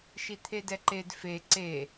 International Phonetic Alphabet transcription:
ʃit̪ʰedɛǃed fe ǀe

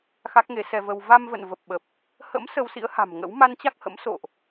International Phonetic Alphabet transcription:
xa˦˥k̚ŋe˨˦sɛ˧və˧w va˧mvə̰˧˨n və˨˩p̚ɓə˨˩p̚ | hə̰˧˥m sə˧wsḭ˧˥ə̯ha̤˨˩m ŋə̰˧˥w ma˧nt͡ɕa˦˥k̚ hə̰˧˥m so̰˧˨ʔ

